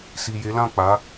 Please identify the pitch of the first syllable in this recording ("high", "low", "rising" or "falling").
low